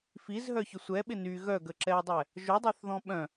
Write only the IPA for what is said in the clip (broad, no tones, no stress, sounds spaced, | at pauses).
f i z ɦ œ ç ʊ sʷ ɛ ɓ ɪ n y ɣ œ ɡ ə ǁ ɛ e̯ dˤ ɛ | ʒ ʊ dˤ a θ ð ɔ̃ ɓ œ̃